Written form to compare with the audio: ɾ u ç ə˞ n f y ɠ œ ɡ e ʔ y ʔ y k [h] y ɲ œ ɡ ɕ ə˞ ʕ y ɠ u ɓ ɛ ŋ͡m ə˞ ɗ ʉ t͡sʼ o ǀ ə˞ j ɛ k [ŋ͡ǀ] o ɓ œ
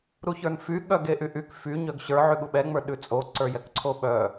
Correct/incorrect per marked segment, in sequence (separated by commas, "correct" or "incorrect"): incorrect, incorrect